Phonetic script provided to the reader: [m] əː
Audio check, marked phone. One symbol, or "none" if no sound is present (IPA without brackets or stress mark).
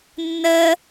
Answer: nː